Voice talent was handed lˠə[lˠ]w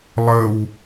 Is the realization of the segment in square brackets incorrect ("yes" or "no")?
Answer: yes